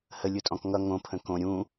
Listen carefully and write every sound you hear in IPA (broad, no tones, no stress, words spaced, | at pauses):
həlʲɯtʼɔ̃k ŋʌ ŋõpʰə̃ kõ ɾʲũ